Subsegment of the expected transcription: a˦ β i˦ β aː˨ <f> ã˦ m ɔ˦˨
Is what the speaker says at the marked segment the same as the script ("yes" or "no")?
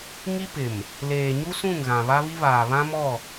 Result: no